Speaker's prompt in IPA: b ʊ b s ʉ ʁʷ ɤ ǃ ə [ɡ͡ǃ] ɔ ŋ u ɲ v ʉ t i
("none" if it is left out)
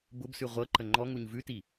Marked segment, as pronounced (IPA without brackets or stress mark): ŋ͡ǃ